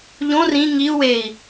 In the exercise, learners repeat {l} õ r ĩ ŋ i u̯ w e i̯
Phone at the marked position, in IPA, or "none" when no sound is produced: ʎ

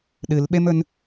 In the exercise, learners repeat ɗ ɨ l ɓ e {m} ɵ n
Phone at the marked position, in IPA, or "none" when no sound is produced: m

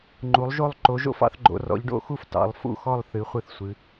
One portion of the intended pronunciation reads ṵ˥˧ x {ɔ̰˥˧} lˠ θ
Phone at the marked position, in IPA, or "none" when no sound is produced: ɔ˥˧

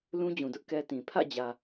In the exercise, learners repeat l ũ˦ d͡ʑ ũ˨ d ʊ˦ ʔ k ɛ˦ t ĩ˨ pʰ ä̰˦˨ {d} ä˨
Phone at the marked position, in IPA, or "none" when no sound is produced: d͡ʑ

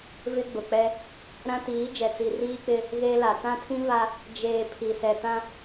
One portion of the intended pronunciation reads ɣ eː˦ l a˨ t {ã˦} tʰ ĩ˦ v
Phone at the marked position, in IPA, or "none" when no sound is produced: ã˦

